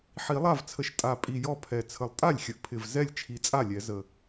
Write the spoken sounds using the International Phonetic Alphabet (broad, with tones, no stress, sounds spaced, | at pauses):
ħ i˨˩˦ lˠ a˥˩ v t͡sʰ ə˨˩ ʃ tʼ a˨˩ pʼ i˨˩ j ɔ˥˩ pʰ ɛ˨˩ t͡sʰ ə˨˩ lˠ tʼ a˥˩ lʲ xʲ ə˨˩ ʔ pʰ ɪ˨˩ v z ɛ˥˩ lʲ t͡ʃʰ i˨˩ t͡sʼ a˥˩ lʲ ɛ˨˩˦ z ə˨˩